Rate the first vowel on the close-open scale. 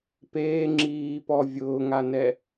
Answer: mid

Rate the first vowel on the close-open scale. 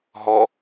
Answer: mid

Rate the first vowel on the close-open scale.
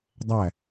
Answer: open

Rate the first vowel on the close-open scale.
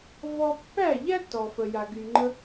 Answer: mid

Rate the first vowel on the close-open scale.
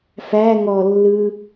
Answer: open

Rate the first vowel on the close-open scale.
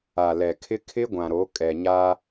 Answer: open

